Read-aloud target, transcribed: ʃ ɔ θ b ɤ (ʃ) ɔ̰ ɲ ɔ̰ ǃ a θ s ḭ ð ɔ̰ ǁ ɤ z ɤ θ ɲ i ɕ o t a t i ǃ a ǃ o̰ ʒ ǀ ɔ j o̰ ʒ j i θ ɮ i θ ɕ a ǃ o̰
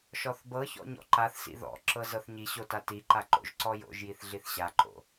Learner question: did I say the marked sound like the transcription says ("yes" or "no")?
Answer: no